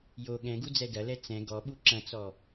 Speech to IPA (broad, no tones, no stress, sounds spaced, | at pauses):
j o ɠ ɛ̃ ɡ u d͡z ɛ d ɐ l ɛ t͡s ɛ̃ ɡ ɔ ɓ u ǁ ɐ̃ t͡s ɔ